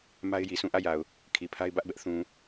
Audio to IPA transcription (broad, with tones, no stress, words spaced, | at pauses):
ma˦ɪ̯ji˨sʰũ˦˨ ʔä˦˨ja˨ʊ̯ | kʰi˨pʰa˦ɪ̯bä˦ʔbɛ˦ʔ θũ˨